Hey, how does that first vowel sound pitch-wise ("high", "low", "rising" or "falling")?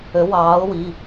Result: rising